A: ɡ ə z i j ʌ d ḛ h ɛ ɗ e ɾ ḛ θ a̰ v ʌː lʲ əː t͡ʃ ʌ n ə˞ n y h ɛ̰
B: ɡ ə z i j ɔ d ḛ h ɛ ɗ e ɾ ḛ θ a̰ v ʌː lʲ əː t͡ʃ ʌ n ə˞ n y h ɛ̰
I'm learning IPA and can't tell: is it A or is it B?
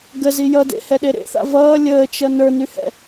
A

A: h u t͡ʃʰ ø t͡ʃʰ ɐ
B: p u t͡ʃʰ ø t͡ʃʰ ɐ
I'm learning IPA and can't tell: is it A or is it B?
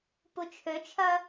B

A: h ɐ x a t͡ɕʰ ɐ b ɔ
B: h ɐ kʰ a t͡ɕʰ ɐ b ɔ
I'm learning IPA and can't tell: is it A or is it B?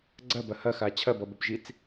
A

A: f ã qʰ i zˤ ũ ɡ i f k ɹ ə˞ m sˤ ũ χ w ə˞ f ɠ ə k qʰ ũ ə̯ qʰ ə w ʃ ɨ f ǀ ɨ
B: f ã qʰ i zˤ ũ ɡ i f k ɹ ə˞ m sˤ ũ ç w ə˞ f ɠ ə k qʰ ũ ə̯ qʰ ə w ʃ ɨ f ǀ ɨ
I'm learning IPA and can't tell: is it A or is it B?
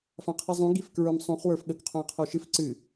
A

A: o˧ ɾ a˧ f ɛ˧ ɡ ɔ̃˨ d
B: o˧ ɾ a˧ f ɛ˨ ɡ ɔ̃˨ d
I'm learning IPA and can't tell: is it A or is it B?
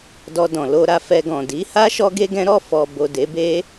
A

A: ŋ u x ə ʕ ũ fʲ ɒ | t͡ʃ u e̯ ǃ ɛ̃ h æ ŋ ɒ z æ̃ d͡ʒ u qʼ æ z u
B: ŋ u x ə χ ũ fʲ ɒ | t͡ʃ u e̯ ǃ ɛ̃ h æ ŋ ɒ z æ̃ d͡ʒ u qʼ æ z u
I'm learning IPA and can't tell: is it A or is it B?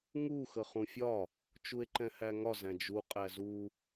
B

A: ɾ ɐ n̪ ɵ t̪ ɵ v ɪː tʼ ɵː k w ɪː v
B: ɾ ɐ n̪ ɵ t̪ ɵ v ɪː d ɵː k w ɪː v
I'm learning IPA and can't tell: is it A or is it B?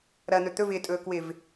A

